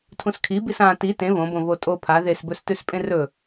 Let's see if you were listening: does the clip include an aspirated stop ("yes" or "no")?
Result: yes